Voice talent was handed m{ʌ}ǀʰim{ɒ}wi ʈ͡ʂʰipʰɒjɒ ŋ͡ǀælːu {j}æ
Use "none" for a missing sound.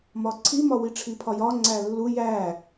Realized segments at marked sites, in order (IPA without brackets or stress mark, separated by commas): ɒ, ɒ, j